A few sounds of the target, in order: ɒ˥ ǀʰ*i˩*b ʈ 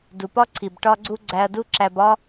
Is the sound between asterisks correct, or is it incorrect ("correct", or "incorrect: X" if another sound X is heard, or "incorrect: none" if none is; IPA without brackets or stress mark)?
correct